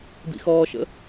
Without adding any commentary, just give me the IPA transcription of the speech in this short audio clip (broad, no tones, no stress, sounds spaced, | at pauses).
b ḭ x ɔː ʃ ə̰